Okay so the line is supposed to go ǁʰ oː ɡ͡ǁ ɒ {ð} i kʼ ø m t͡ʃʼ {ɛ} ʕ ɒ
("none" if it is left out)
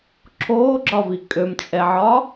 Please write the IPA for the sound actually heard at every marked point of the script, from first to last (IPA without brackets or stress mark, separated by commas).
v, ɛ